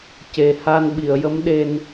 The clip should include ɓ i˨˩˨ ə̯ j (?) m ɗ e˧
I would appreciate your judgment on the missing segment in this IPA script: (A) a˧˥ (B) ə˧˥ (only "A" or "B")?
B